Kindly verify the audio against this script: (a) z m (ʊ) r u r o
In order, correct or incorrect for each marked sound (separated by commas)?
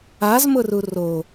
correct, correct